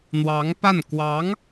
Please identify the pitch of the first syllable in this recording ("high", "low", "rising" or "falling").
rising